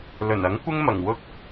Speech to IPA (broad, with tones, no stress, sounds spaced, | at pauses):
l ɵ˨˩ n ɐ˨˥ ŋ kʷ ɪ˥ ŋ m ɐ˨˩ ŋ w ʊ˧ k̚